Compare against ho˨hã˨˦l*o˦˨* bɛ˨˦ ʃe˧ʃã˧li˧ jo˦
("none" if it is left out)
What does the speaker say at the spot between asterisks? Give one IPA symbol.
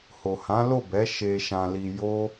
o˦˨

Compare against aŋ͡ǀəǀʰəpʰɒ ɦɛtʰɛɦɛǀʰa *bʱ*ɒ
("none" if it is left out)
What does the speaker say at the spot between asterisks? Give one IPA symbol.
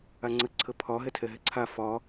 f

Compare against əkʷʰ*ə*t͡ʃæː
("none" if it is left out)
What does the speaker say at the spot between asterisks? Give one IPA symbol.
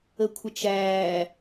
ə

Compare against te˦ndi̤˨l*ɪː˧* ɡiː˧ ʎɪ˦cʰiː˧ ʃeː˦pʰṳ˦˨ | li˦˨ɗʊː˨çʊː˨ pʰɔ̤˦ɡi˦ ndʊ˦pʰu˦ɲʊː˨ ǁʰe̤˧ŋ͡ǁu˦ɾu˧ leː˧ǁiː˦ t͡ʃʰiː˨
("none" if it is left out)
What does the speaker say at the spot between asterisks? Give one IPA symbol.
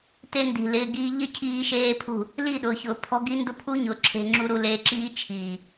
ɪː˧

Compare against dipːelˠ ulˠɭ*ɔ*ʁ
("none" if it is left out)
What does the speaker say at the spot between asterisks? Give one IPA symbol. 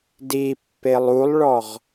ɔ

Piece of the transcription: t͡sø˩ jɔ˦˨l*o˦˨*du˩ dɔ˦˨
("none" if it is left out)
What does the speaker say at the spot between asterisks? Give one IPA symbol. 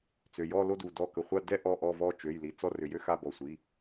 o˦˨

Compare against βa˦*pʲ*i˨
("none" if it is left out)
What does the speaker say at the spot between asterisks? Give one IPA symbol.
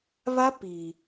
p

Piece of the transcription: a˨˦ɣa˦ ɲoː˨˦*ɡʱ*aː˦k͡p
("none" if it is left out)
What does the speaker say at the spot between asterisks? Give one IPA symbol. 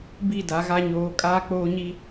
kʼ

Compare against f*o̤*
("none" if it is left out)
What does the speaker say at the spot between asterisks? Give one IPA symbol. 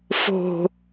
o̤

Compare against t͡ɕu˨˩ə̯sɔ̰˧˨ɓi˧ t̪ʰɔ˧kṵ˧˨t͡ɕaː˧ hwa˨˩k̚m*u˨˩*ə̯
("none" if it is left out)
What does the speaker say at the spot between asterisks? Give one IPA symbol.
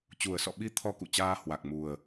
u˨˩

